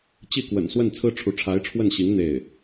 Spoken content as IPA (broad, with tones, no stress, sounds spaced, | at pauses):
t͡ɕ i˥˩ k w ə̰˨˩ n s w ə˥˩ n t͡sʰ ɹ̩˥ ʈ͡ʂʰ u˧˥ ʈ͡ʂʰ a˧˥ ɪ̯ ʈ͡ʂʰ w ə˥˩ n ɕ i˧˥ ŋ n̪ e˥˩ ɪ̯